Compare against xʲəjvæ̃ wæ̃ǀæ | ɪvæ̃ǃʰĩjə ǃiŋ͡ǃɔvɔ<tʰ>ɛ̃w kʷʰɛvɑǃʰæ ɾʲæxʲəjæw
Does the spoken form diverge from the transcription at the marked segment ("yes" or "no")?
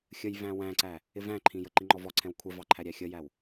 yes